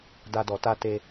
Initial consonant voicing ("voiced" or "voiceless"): voiced